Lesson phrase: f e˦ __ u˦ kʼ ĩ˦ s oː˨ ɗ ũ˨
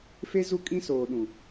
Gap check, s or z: z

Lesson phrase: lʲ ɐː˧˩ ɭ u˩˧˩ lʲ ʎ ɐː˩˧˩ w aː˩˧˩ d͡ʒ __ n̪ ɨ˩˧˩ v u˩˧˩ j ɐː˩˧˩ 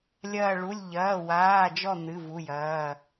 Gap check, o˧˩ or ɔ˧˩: ɔ˧˩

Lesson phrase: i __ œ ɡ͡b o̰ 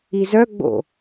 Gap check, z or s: z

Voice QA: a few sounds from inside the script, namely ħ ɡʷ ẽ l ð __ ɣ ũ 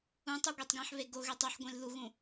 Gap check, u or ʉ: u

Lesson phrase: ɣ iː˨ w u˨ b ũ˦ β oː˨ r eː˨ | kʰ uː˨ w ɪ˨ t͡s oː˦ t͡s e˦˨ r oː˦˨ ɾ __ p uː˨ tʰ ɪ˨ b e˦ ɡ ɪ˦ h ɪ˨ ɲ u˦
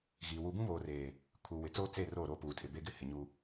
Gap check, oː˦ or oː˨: oː˦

